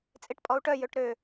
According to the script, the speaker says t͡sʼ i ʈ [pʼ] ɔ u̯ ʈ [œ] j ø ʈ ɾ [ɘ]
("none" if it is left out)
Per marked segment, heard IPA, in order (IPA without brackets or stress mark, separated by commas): pʼ, œ, ø